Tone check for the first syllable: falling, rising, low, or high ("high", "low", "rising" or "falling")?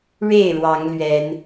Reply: falling